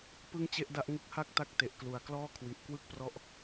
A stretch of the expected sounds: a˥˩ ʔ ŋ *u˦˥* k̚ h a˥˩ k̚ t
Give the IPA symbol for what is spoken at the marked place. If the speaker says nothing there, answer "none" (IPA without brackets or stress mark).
ɯ˦˥